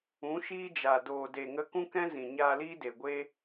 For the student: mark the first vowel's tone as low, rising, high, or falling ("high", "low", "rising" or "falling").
rising